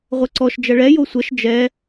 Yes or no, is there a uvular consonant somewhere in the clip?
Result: yes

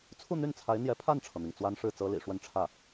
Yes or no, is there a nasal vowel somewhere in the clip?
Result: no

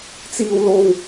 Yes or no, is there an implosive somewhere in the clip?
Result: no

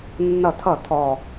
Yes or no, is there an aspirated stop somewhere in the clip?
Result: yes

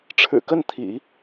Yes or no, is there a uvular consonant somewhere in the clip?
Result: no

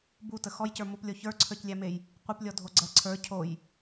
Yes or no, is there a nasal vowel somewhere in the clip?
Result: no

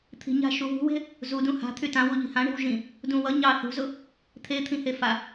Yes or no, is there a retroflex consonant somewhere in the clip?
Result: yes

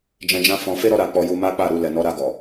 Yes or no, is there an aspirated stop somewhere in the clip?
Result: no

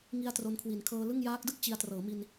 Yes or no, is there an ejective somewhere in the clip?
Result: no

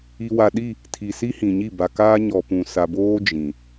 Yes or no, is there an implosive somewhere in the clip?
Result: yes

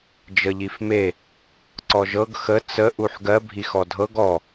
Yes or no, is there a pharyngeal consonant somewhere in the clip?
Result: yes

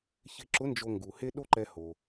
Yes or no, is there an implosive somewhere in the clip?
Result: yes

